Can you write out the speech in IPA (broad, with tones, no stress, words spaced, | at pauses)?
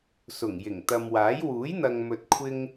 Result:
sʊ˨˩ŋjɪ˨˩ŋt̪ɐ˨mwaː˨˥j wuː˨˥jn̪ɐ˨ŋmɵ˨t̚ kʷʰɪ˥ŋ